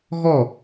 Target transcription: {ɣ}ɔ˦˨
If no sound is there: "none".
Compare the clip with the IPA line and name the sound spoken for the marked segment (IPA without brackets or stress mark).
ɣ